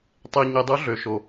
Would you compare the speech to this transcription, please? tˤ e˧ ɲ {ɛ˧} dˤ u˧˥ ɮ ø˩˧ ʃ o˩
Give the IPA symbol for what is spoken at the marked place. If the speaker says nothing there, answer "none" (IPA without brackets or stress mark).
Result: e˧